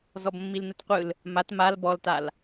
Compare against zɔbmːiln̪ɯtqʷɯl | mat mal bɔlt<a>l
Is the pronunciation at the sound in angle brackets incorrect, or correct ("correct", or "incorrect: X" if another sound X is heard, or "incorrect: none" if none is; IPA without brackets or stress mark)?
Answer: correct